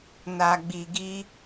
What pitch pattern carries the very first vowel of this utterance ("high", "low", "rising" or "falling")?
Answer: low